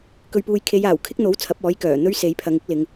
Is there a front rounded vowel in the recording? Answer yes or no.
yes